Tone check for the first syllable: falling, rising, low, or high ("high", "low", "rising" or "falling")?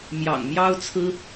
low